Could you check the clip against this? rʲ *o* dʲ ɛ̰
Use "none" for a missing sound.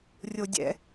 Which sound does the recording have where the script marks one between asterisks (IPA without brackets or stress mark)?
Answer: o